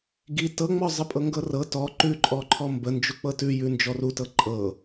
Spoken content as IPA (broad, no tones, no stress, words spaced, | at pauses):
ɡi tɤŋ͡mɔ zˤəpʼɤŋɡɤrɤ tɔ ǃʉǃʼɔǃʰɔ mbə nd͡ʒuk͡pɤtʉ jʉnd͡ʒɔrutɤ ǃʼɤ